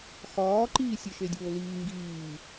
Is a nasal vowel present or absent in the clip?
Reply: absent